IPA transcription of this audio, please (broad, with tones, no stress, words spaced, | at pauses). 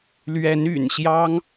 lɥɛ˨˦ny̰˨˩nɕjɑ˦ŋ